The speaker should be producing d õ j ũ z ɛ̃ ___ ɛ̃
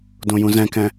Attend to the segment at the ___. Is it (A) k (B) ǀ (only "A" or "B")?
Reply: A